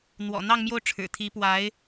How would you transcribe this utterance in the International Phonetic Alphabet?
n̪ w ɔ̰˨˩ n̪ ɑ˥˧ ŋ m j o˥˩ ʊ̯ ʈ͡ʂʰ ɻ̩˨˩ t̪ʰ i˧˥ p w a˧˥ ɪ̯

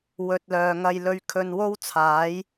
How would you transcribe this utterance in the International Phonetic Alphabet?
w ɵ˨ t̚ l œː˨ ŋ ɐ˧ j l ɵ˧ ɥ kʰ ɵ˧ n w o˥ w t͡sʰ aː˨˥ j

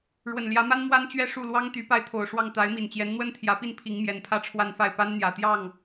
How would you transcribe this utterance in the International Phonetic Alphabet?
ɻ w ə˨˩ n l j ä˧˥ m a˥ n m w a˥ n t͡ɕ ɥ ɛ˥˧ ʂ u˥˩ l w ɑ˥ ŋ t̪ y˧˥ p a˥˩ ɪ̯ t̪ʰ o˨˩ ʊ̯ ʂ w ɑ˥˩ ŋ t̪ a˧˥ ɪ̯ m i˨˩ n t͡ɕ j ɛ˧˥ n n̪ w ə˥ n t̪ʰ j ä˧˥ p i˥˩ n pʰ i˧˥ ŋ m j ɛ˨˩ n pʰ ä˥˧ ʈ͡ʂʰ w a˥˧ n f a˥˩ ɪ̯ p a˥ n n̪ j ä˨˩ t̪ j ɑ˥˩ ŋ

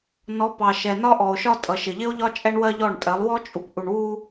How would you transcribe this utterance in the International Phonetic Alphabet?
n ɔ˨˦ p ɑ˨ ʃ ɛ˨ n ɒ˦ ʔ ɔ˨ o̯ ʃ ɒ˦ tʼ ʌ˨ ʃ ɪ˨ ʎ ɪ˦ o̯ ʎ ɒ˦ t͡ʃʼ ɛ˦ ɳ w ɜ˦ ʎ ɔ˦˨ ɳ tʼ ɜ˨˦ lˠ w ɔ˦ t͡ʃʼ u˨ p ʔ u˨ ɳ w u˦

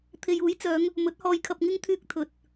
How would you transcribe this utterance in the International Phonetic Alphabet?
t̪ʰ e˨ j uː˨˥ j t͡s œː˨˧ ŋ | m ɵ˨˥ t̚ h ɔː˧ j kʰ ɐ˧ p̚ ŋ ɪ˥ ŋ t̪ʰ yː˧ k̚ t̪ʰ ɵ˨ t̚

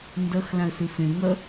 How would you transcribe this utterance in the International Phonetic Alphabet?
n d ʌ x l ã ə̯ s ɯ f ẽ ŋ ʌ

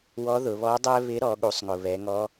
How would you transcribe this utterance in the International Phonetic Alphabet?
w ɔ˧˥ ð ʊ˩˧ β ɔ˧˥ dˤ ɛ˥ β ɪ˧˥ ɾ ɔ˩˧ ɠ u˩˧ sˤ ŋ ʊ˩ β ɛ˩˧ ŋ ɔ˧˥

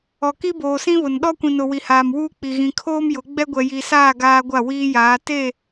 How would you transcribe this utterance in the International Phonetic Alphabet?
ɔ˨ k i˦ b oː˨ s ĩ˦ β ʊ˨ n ɗ ɔ˦ kʷ ĩ˨ n ʊ˨ w i˨ h aː˨ m w uː˦ k͡p i˨ ɣ ĩ˨ kʰ oː˦ m j ʊ˨˦ ɡ͡b ɛ˦ ɡʷ ɛ˨ j i˨ s aː˦˨ ɡ aː˦ ɡʷ a˦˨ w iː˦ j aː˨˦ t e˦˨

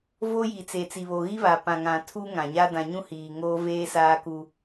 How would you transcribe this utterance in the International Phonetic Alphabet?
v o˦ j i˨ t͡s e˨ t͡s i˨ β o˨ ɣ i˦ β a˨ p ã˨ ŋ ã˨ tʰ u˦ ŋ ã˨ ɲ a˦ d ã˨ ɲ ũ˦ h iː˨ ŋ oː˦ v eː˦ s aː˦ k u˦

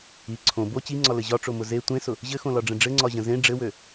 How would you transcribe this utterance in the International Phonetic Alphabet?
i ǀʰ õ b o t͡ɕ i ŋ͡ǀ ɒ l ɘ ʑ ɒ ʈ͡ʂ o m ʊ z e tʷ ẽ s ʊ | ʑ ɘ x õ l ɒ ɖ͡ʐ ə̃ ɖ͡ʐ ɘ ŋ͡ǀ ɒ ʑ ə̃ z ẽ ɖ͡ʐ ɘ w ø

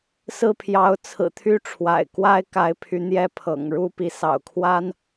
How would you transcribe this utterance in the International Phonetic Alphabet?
s ɹ̩˥˨ pʰ j ɑ˨˦ ʊ̯ t͡sʰ ɹ̩˨˩ t̪ʰ y˦ ʈ͡ʂʰ w a̰˨˩ ɪ̯ k w a˦ ɪ̯ k a˨˦ ɪ̯ pʰ y˨˦ n̪ j ɛ˦ pʰ ɤ̰˨˩ ŋ ɻ u˦ p i˨˦ s ɑ̰˨˩ ʊ̯ kʰ w a˦ n

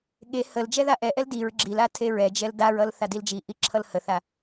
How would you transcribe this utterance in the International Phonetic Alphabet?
ɠ e h ə l d͡ʒ ɛ ð a ʔ ɛ ʔ ɛ l d i ɹ ɡ͡ǁ i l a tʰ e ɹ ɛ d͡ʒ ɛ l d a ɹ ʌ l θ a d i l d͡ʒ i ʔ i ǁʰ ʌ l h ə θ a

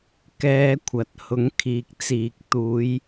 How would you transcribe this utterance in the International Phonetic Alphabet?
k ɛː˧ kʷʰ ɐ˨ t̚ h ʊ˨˥ ŋ kʰ iː˨ k̚ t͡s iː˨ k̚ t̪ uː˨˧ j

